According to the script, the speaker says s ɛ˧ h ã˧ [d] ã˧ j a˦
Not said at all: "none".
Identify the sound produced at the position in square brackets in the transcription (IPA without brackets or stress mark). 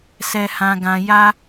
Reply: ɡ